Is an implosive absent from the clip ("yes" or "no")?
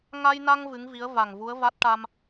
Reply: yes